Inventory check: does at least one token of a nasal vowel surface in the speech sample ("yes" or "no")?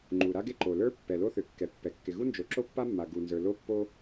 no